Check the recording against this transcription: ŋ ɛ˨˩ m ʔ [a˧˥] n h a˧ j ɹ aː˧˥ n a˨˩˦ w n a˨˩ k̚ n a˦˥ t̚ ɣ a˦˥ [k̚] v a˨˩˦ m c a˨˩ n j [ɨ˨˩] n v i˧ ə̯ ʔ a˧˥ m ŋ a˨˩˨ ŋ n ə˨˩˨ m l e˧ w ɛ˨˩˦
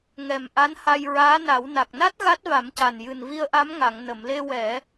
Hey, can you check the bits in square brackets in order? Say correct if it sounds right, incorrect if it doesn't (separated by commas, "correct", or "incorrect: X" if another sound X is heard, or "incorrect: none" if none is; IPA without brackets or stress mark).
correct, incorrect: t̚, correct